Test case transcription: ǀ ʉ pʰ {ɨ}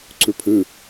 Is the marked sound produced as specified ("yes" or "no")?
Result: yes